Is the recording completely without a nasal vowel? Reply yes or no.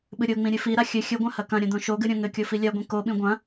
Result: no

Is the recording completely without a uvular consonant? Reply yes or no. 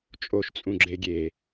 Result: yes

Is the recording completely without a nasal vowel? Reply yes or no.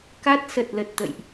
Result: yes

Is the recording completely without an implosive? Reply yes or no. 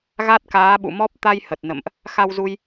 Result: no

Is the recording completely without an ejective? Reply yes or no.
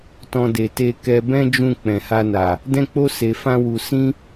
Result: yes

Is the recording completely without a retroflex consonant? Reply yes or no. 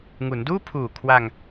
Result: yes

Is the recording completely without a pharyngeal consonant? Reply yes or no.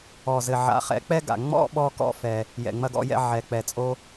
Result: no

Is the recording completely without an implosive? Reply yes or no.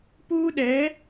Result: no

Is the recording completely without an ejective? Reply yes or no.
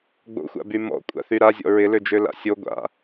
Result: no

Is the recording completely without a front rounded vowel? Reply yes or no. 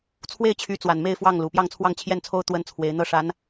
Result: no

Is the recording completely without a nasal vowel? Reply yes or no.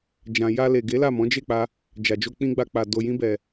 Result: no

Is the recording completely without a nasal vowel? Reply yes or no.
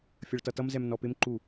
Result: yes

